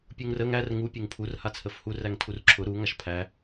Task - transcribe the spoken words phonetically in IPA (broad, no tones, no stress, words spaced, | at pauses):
pʲuŋrəŋ ær ŋu pʲuŋpʰur hat͡sʰəfhu ræŋtʰurǁʰʊ ɾu ŋaʃpʰæ